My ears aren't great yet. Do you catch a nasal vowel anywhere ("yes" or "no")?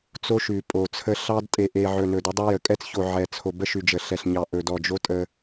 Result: no